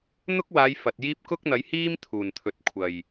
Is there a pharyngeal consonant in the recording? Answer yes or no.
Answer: no